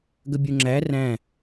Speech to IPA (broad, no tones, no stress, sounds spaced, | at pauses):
ɡ ə bʲ u ŋ͡ǁ æ r æ̃